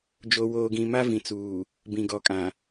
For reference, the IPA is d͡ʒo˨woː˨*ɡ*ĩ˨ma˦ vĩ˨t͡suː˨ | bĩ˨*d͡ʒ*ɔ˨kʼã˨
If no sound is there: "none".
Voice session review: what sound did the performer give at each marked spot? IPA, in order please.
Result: ɡ, ɡ

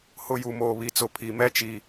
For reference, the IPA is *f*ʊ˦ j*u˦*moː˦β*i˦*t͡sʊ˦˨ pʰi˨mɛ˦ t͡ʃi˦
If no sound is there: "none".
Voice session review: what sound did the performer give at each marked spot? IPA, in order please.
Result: h, u˦, i˦

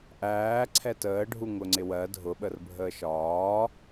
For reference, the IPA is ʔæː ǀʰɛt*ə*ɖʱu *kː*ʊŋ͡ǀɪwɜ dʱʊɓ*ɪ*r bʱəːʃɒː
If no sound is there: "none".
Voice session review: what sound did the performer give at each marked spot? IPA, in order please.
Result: əː, ŋ, ə

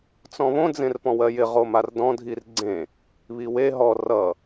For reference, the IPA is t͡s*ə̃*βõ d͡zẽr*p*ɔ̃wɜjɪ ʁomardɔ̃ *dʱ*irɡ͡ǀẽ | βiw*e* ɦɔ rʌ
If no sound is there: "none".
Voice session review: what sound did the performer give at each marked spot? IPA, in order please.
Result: ɔ̃, p, dʱ, e

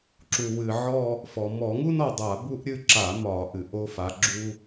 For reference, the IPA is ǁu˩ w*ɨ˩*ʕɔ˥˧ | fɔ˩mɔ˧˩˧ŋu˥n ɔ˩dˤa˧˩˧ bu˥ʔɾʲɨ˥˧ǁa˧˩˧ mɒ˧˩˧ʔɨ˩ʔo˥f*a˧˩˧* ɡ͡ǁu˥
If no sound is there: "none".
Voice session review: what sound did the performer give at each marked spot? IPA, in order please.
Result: ɨ˩, a˨˦

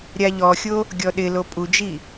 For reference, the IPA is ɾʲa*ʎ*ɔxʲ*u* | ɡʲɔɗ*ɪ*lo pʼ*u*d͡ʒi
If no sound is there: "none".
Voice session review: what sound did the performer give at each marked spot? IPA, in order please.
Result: ʎ, o, ɪ, u

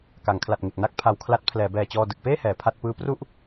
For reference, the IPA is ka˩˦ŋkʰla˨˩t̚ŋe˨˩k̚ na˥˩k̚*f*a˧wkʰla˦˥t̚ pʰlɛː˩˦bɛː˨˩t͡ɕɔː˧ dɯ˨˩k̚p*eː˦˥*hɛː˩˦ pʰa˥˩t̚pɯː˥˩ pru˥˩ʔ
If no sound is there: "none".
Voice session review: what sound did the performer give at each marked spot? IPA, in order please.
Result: pʰ, eː˥˩

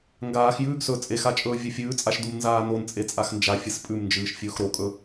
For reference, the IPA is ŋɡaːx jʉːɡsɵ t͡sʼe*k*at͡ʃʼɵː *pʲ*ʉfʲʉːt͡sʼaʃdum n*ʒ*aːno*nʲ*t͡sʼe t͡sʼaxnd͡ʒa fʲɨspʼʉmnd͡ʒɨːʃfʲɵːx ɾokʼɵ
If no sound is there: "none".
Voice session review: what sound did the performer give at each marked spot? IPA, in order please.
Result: x, vʲ, z, n

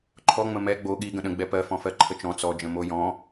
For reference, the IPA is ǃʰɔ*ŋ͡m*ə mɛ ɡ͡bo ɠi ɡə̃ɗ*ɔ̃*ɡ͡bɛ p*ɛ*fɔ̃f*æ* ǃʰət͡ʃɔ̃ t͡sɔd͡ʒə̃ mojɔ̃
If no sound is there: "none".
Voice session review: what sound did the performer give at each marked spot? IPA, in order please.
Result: ŋ͡m, ə̃, ɜ, ɜ

